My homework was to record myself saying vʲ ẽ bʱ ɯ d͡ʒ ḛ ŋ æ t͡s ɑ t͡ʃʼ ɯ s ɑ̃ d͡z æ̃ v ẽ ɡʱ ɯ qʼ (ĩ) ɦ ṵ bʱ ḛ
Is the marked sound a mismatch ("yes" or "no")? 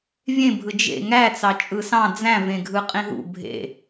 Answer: no